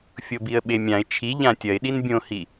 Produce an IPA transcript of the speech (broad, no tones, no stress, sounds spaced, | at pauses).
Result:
fʲ o b i ə̯ ɓ e mʲ ã ɪ̯ t͡ʃʰ i ʎ ã tʲ ɐ ɪ̯ ɗ i n bʲ õ h i